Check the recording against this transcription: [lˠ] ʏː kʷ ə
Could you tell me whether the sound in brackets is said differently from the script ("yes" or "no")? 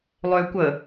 no